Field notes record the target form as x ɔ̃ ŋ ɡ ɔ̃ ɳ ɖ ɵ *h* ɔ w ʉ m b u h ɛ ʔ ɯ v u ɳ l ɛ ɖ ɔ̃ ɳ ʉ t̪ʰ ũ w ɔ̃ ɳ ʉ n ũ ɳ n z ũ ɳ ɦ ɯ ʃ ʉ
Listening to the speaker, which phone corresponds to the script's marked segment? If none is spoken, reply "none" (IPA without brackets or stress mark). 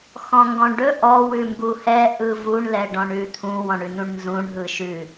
ʔ